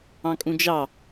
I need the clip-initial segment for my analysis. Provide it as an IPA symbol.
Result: ɑ̃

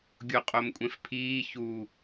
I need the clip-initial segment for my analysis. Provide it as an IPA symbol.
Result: ɡʲ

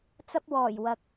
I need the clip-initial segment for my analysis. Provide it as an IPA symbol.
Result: t͡s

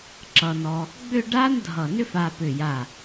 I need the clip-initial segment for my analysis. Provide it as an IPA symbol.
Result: ǁ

